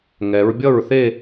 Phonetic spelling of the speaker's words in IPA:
ŋɛ˩˧ɹbʲʌ˥˩ɹθe˥˧

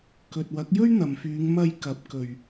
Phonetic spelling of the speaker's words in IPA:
kɵ˨t̚wɐ˨˥k̚ jɵ˥ɥn̪ɐ˨mfyː˨˧ŋ mɐ˧jkɐ˨˥p̚kɵ˨ɥ

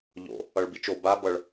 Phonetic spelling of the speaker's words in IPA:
ʎo̰ | ʌɭbit͡ʃo ba bʌɭ

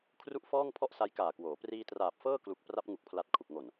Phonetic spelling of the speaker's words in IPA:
kʰru˥˩ʔfɔː˥˩ŋ pʰɔ˥˩ʔsa˦˥jkaː˨˩kwoː˩˦ priː˧traː˨˩p̚fɤː˥˩klu˨˩k̚ pra˦˥p̚ŋu˨˩k̚pʰla˨˩t̚ kʰu˨˩k̚ŋo˨˩n

